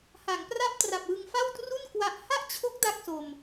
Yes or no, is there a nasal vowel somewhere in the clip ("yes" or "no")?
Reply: no